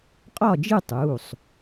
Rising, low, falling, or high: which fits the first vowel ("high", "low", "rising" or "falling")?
falling